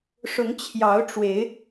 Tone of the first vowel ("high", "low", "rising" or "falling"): rising